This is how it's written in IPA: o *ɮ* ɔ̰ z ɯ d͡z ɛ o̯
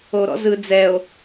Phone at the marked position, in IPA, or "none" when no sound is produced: ɾ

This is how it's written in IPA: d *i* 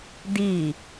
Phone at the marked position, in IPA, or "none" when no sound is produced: i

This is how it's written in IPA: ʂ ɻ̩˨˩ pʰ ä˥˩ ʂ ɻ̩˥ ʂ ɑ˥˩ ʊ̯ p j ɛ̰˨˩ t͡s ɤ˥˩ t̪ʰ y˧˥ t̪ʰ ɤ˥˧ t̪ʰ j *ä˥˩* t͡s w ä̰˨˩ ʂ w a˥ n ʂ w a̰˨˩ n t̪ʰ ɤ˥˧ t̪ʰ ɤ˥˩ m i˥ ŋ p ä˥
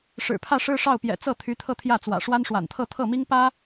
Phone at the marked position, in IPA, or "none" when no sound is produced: ä˥˩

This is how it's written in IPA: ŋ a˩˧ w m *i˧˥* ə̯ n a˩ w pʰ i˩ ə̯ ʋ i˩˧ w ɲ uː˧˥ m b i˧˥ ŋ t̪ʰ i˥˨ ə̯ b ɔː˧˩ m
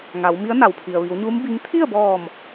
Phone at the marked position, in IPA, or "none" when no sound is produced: i˧˥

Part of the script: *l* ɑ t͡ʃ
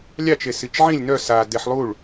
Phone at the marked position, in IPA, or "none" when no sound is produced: lʲ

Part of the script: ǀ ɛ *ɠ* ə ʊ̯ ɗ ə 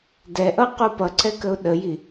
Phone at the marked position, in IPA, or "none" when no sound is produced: k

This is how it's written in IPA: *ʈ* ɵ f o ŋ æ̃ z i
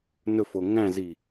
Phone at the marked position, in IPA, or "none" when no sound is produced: n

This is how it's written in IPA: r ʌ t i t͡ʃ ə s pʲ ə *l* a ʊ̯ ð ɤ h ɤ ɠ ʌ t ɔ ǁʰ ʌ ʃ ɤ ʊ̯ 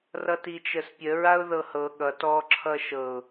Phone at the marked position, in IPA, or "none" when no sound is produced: ɹ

